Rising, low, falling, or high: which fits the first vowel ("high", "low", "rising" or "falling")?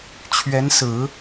rising